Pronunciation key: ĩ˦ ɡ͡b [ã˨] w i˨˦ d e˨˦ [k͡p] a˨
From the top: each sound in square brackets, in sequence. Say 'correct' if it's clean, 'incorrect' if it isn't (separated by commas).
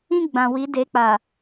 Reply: correct, correct